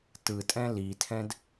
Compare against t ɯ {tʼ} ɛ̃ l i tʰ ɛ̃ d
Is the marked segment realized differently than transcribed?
no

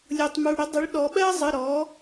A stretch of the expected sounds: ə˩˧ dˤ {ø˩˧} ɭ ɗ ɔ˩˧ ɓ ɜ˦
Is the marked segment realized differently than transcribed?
yes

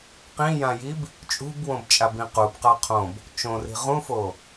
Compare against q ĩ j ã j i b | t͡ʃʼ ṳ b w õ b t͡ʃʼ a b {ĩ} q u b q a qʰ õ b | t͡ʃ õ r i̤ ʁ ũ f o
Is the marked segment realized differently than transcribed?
no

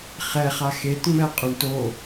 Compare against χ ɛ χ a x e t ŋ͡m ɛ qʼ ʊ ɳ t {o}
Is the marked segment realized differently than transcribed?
no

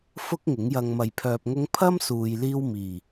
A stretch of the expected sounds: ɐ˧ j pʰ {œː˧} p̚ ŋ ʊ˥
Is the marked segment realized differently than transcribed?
no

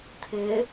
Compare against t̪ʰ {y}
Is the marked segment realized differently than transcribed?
yes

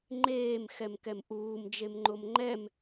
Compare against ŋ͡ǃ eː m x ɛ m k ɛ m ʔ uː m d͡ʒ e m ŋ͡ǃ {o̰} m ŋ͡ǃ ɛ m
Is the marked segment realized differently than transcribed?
yes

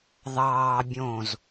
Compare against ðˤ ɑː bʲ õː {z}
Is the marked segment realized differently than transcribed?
no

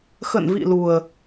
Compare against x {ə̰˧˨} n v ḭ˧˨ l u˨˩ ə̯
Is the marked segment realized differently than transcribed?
no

